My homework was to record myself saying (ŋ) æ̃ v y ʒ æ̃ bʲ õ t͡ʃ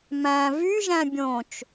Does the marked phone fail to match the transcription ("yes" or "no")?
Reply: yes